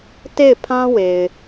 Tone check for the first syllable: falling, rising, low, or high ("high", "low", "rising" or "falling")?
falling